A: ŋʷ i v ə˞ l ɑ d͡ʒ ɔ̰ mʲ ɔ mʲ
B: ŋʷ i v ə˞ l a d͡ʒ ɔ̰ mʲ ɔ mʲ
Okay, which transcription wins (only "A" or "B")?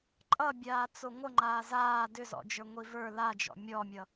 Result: B